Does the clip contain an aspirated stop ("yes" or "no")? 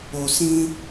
no